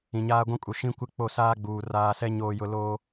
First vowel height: high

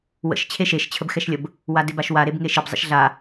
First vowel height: mid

